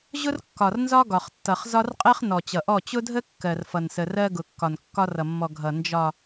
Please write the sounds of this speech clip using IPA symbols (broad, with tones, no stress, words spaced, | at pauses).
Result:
ʑʊ˦rkːɒ˨rnzɒ˦ ɡɒ˨χtːʌ˨χ zɒ˦rqʼɜ˦χ nɔ˨t͡ɕʌ˨ʔɔ˦˨ t͡ɕʊ˦dʱə˦ kːɜ˨rfʌ˨nsə˨rɜ˦ ɡʊ˨kːɒ˨n kːɒ˦rʌ˨mːɔ˨ ɡʱʌ˨ nd͡ʒɒ˨